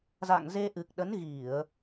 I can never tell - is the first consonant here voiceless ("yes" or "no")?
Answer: no